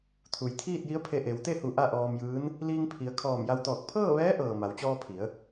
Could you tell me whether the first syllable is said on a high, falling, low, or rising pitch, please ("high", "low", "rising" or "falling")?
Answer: low